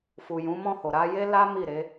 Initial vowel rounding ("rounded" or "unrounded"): rounded